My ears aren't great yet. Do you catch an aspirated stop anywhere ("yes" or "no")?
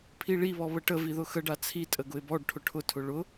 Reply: yes